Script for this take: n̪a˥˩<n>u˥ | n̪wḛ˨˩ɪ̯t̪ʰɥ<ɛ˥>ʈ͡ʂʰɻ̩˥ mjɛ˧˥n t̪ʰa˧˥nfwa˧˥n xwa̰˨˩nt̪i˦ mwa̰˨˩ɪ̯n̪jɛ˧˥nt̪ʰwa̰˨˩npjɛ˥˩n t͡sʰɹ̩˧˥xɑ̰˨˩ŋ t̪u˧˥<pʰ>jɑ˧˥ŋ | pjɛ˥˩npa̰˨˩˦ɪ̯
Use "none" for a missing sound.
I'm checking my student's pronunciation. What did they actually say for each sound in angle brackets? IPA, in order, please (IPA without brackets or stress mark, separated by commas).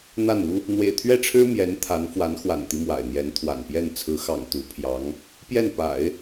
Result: n, ɛ˥˩, pʰ